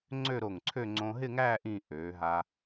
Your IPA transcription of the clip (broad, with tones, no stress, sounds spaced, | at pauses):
ŋ͡ǀ ø˥˧ ɾ o˧˩ ŋ ǀʰ ø˥˧ ŋ͡ǀ õ˧ ɦ ɪ˥˧ ŋ æː˥˧ ʔ ĩ˥˧ ʔ øː˩˧ ɦ a˧